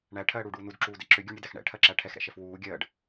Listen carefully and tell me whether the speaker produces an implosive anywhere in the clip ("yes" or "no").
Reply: no